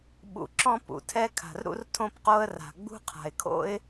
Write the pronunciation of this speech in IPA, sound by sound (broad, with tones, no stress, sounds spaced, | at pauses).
ɓ ṵ˩ ǁ ɔ̃˥ p ṵ˩ tʰ ɛ˥ kʰ a̤˩ r ɾ ṵ˥ r tʰ õ˥ p q o˥ ə̯ r a̤˩ ɡ͡b ṳ˥ qʰ a̤˩ ɪ̯ kʰ o̰˥ ɪ̯